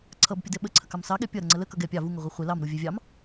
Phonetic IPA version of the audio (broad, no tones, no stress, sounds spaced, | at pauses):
ǀʰ ʌ b pʲ ʌ d ɛ ɓ ə ǀʰ ə k ɑ m s ɑ ɠ ɛ pʲ ʌ ɾ ə ŋ͡ǀ ə l ə k ʌ ɡ ɛ pʲ ɑ v u ŋ ə ʁʷ i χʷ ɛ l ɑ m ɾ u vʲ ɛ vʲ ɑ m